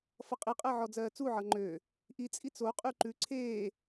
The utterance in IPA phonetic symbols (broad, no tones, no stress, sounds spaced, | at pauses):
f ʌ qʼ i qʼ ɜ ʕ ɔ d͡z ɜː t͡s u ʕ ʌ ŋ͡ǃ ø | ʔ i t͡sʼ i t͡s o qʼ ʉ ǃ ʉ ǀʰ eː